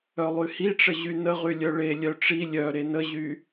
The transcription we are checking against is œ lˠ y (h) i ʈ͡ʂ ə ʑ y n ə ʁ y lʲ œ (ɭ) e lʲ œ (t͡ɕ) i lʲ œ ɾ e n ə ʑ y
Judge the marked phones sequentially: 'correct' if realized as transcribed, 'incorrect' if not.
correct, correct, incorrect: ʈ͡ʂ

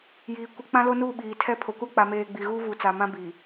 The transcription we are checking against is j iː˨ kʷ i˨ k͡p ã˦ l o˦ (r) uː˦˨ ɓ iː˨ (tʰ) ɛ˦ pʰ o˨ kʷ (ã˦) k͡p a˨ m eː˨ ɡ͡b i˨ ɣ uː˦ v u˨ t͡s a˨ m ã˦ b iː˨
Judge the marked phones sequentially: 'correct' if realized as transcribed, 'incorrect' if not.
incorrect: n, correct, incorrect: a˦

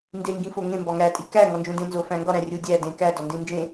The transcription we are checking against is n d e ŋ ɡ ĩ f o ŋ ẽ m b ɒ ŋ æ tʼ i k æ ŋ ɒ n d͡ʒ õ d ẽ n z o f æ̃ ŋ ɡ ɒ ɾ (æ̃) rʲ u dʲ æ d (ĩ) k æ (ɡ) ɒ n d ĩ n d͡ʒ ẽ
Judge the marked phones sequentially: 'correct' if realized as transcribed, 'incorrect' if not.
correct, incorrect: ẽ, incorrect: d

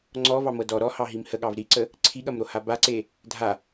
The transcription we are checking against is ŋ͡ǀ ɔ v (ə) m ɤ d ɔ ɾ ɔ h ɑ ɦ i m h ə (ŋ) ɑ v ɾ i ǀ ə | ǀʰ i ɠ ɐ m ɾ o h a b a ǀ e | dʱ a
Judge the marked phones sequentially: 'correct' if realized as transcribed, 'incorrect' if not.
incorrect: ɑ, incorrect: ɠ

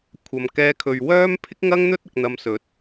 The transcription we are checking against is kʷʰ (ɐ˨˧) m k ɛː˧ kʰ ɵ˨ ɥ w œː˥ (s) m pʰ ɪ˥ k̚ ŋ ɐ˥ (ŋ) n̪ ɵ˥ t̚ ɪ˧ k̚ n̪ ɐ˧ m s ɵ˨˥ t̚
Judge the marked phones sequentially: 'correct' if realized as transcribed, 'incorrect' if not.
incorrect: ɐ˨, incorrect: none, correct

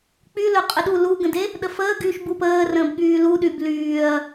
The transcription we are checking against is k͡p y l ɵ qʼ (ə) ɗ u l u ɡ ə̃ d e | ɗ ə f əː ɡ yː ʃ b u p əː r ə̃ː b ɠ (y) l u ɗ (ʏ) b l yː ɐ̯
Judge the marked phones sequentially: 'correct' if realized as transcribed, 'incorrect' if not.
correct, incorrect: yː, incorrect: y

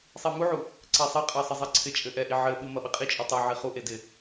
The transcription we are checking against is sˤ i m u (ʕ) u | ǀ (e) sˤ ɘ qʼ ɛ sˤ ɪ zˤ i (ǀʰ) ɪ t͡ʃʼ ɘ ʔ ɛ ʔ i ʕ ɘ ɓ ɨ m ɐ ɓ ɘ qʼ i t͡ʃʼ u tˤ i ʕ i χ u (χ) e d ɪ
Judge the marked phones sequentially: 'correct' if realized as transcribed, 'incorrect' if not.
correct, correct, correct, incorrect: ʔ

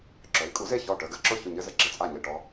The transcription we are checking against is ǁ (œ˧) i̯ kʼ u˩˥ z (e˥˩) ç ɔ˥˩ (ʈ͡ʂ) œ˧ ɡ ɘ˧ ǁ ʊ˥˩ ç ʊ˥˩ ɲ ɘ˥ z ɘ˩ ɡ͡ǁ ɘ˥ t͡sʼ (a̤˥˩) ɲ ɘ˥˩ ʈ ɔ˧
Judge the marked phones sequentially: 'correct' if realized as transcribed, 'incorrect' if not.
incorrect: œ˩˥, correct, incorrect: ʈ, incorrect: a˥˩

